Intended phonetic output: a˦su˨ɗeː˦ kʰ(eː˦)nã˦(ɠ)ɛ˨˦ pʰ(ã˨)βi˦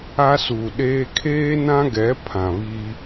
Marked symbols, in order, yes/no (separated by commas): yes, no, yes